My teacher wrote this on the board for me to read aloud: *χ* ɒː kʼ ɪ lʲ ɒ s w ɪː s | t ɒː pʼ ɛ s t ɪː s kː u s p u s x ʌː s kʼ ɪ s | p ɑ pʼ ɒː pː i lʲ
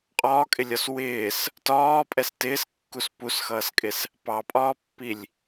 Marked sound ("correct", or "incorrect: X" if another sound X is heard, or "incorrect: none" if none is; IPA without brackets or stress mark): incorrect: qʼ